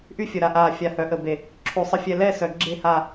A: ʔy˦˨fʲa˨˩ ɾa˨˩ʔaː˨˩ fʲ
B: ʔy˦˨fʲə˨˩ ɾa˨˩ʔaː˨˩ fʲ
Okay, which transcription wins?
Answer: B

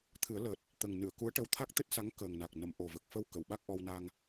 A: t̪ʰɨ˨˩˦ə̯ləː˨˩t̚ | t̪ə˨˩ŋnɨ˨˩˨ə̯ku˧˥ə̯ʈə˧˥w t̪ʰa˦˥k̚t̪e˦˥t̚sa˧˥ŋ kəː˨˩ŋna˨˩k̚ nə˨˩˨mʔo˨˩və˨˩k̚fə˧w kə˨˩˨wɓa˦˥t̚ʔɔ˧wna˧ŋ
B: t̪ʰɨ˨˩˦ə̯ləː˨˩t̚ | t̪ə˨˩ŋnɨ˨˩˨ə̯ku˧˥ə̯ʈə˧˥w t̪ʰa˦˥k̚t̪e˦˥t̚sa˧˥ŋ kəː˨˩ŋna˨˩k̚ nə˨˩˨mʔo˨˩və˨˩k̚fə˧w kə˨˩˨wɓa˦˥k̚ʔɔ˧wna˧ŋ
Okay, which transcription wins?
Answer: B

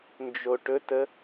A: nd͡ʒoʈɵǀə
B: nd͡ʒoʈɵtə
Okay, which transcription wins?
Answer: B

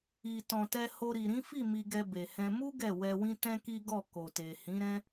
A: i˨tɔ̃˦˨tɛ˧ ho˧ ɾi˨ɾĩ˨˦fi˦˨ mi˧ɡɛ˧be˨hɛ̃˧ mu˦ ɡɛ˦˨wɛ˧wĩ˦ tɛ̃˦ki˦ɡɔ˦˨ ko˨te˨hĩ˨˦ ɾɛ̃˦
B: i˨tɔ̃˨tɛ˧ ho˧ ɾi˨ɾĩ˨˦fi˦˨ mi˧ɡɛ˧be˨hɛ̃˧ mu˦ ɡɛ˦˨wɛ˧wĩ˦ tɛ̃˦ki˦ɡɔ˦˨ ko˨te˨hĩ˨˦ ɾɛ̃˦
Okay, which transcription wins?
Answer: B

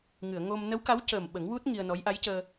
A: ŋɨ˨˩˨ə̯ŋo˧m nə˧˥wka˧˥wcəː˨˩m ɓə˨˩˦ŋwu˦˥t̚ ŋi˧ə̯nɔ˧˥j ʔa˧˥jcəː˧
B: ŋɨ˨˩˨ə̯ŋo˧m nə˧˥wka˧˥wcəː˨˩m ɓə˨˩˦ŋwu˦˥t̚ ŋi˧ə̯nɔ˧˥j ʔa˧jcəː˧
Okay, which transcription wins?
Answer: A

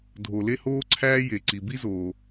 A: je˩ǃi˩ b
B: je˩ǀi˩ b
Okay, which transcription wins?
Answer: B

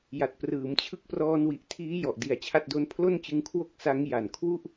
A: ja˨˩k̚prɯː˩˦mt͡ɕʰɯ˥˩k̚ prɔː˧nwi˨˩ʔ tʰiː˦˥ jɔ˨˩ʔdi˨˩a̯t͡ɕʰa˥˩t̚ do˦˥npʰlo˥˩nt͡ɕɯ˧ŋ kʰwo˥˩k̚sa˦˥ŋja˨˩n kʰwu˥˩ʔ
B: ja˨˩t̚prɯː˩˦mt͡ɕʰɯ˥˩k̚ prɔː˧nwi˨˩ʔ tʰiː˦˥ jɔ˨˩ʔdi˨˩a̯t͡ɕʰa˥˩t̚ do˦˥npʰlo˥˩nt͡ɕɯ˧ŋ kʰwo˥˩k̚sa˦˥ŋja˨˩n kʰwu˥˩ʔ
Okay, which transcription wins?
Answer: B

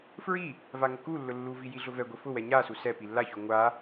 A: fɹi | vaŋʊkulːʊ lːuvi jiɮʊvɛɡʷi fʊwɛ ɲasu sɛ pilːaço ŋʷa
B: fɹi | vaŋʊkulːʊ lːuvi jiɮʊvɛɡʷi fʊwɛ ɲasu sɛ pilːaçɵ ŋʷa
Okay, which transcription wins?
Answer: A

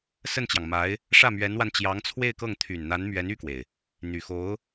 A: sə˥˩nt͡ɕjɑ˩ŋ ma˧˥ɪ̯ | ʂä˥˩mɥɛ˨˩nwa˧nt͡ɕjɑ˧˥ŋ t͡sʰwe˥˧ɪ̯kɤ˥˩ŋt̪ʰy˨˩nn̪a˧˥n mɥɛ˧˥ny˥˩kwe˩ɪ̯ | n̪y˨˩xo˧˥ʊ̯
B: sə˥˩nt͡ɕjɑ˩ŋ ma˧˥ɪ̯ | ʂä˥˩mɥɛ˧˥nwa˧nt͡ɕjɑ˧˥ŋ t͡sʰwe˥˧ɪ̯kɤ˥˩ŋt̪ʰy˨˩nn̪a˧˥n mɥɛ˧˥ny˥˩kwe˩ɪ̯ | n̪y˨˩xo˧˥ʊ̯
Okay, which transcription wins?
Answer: B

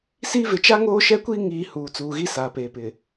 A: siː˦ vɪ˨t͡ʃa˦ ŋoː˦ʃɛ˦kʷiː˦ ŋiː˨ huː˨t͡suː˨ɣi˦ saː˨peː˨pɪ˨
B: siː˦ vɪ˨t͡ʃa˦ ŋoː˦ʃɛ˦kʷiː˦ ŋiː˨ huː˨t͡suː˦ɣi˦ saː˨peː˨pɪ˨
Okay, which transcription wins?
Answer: A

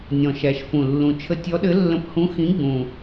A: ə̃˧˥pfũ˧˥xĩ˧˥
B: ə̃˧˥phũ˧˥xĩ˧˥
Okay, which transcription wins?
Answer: B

